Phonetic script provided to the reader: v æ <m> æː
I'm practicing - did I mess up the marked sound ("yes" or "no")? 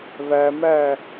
no